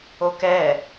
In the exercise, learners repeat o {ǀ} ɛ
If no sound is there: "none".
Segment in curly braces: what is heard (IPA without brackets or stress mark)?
k